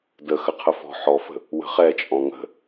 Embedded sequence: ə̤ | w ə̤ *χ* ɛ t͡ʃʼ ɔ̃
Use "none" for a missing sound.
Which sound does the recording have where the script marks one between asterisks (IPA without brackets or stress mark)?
χ